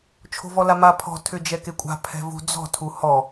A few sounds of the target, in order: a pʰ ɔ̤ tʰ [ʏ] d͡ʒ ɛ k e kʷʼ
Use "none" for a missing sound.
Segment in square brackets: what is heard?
ʏ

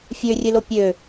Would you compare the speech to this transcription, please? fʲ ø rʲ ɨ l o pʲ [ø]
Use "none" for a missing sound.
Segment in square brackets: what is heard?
ø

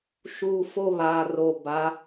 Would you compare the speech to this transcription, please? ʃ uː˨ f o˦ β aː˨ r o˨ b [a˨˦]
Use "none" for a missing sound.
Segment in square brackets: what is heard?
a˨˦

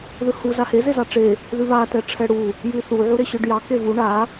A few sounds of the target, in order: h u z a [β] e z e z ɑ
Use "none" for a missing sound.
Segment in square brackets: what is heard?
h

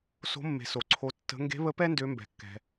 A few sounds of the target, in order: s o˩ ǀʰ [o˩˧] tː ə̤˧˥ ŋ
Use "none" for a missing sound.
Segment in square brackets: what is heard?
o˧˥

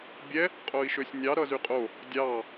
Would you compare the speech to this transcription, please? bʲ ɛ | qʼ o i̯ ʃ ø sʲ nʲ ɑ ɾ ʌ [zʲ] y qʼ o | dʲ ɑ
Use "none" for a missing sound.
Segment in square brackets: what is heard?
z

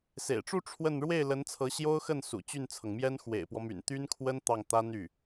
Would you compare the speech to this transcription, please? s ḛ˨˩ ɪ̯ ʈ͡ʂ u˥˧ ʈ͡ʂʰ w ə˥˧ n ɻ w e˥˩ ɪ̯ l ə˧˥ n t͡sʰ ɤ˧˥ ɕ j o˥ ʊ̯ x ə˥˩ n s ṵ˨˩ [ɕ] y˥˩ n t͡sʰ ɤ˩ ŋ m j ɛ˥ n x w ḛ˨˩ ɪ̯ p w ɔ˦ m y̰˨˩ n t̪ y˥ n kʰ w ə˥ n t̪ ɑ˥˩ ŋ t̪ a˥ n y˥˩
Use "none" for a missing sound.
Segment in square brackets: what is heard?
t͡ɕ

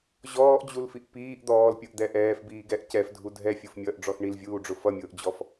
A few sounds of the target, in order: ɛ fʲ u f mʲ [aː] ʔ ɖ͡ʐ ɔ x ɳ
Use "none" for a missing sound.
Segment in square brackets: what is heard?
ʌː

